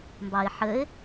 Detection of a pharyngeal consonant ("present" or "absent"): present